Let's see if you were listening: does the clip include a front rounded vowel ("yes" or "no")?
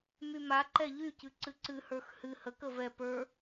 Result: yes